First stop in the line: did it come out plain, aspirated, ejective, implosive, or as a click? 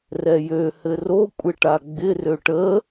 ejective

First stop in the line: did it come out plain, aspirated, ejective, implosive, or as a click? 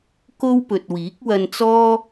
plain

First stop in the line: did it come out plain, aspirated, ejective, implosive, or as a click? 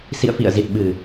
plain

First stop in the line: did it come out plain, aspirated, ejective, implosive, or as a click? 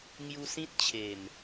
plain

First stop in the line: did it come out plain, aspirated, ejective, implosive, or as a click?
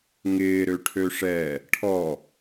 aspirated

